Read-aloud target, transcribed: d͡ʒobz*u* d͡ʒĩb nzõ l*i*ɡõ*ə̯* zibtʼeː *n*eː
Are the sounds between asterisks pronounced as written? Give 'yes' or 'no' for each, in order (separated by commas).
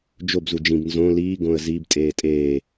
yes, no, yes, no